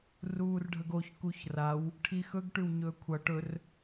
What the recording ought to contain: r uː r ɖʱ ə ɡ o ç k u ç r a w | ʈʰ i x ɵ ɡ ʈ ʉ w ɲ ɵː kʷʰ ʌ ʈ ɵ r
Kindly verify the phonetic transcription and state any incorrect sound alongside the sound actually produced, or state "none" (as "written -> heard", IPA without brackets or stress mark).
none